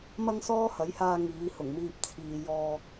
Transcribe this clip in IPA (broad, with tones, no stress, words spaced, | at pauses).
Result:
mɐ˥ŋsɔː˥hɐ˨˥jhaː˧ ŋiː˨˧hʊ˨˩ŋmiː˧p̚ t͡sʰiː˨jɔː˧